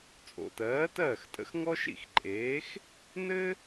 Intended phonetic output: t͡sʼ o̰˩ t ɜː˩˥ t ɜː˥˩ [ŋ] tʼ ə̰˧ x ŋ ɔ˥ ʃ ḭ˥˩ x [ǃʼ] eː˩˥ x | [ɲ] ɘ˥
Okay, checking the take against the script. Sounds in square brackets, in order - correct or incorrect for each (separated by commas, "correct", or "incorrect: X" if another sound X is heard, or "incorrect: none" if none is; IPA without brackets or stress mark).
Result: incorrect: x, correct, incorrect: n